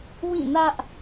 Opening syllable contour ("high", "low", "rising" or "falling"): falling